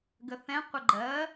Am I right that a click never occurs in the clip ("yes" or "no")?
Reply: no